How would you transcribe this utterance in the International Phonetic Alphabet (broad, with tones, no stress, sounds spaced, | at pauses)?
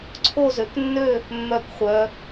ǀʰ o˦˨ z ø˩˧ k nː ø˦˨ | mː œ˦˨ k χʷ œ˩˧